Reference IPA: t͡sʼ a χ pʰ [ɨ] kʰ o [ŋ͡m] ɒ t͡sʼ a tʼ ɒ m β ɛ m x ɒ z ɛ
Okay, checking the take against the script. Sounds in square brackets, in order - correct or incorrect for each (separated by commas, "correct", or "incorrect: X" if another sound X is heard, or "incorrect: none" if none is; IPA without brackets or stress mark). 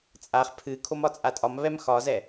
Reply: correct, incorrect: m